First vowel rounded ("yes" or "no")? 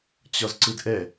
yes